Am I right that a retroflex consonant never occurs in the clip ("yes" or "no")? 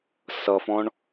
no